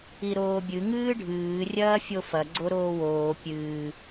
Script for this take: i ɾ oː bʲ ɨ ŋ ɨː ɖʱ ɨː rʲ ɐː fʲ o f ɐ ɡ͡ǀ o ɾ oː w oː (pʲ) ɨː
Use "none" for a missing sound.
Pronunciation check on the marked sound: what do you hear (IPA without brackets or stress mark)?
pʲ